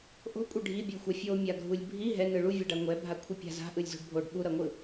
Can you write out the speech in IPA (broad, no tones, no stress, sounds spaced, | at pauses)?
ʔ o̤ kʷʼ i ɖʱ i bʲ ɯ xʷ a fʲ o mʲ a ɡʱ u lʲ bʱ i ɦ ɛ n ɯ ɭ u vʲ ɛ ɖ a ŋʷ ɛ bʱ a kʷʰ e pʲ a̤ z a̤ ʔ ɯ lʲ z o̤ ɖ bʱ o ɖ ɓ u ɾ ʌ ŋʷ ɯ